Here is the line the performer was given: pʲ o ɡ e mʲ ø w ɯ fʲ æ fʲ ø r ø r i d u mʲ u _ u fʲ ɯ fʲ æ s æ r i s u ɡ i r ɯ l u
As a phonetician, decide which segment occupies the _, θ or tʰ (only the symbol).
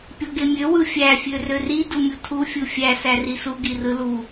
tʰ